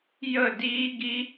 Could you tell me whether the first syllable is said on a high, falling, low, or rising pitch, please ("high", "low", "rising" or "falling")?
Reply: falling